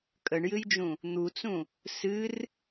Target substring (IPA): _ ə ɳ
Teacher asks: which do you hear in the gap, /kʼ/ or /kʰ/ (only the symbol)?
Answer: kʼ